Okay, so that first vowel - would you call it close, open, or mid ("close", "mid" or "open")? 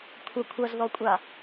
open